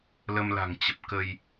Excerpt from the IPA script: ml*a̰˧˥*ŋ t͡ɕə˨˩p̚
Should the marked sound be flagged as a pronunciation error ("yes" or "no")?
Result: yes